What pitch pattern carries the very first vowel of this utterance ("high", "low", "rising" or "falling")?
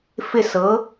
falling